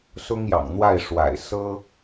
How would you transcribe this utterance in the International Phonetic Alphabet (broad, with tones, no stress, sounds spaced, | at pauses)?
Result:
s ʊ˥ ŋ j ɑ̰˨˩ ŋ n̪ w a˥˩ ɪ̯ ʂ w a̰˨˩ ɪ̯ s ɤ˥